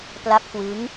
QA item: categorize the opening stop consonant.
plain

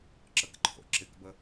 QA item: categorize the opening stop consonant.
click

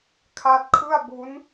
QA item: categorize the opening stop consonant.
aspirated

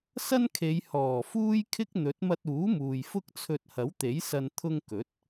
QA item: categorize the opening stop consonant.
aspirated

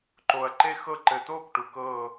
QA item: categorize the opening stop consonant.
click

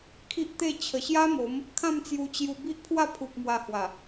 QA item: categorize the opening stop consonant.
aspirated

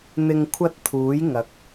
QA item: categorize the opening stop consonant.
aspirated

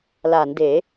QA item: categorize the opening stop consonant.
plain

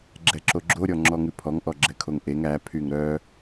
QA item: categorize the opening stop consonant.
click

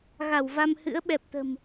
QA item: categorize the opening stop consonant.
implosive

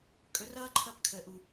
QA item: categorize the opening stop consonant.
ejective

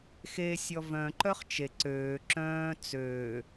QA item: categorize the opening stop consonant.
click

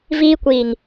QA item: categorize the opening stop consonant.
plain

